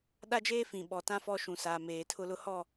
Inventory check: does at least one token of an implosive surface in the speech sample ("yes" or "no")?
yes